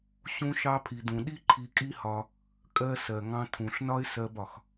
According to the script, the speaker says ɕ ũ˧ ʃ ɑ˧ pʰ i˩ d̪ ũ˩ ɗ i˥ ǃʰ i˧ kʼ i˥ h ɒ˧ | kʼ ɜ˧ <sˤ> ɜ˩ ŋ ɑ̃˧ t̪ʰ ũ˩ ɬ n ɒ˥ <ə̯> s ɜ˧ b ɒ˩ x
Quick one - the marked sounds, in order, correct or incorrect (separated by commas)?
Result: incorrect, incorrect